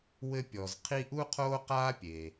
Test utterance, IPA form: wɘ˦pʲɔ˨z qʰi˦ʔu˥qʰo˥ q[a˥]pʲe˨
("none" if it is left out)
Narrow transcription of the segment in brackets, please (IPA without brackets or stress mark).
a˥